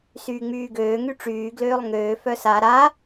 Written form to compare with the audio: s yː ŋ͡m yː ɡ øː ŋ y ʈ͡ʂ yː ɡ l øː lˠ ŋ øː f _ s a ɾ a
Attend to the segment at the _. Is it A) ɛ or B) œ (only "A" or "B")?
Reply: B